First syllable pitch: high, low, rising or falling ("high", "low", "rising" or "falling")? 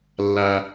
low